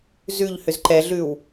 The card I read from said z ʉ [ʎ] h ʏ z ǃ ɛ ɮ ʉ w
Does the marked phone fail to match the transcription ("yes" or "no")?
no